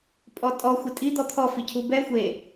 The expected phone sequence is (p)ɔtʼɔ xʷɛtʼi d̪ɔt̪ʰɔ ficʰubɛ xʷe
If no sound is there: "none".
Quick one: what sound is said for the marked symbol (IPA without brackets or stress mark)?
pʼ